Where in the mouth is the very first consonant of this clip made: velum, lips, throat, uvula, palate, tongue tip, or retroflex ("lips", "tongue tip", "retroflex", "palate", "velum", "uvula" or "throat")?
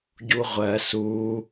palate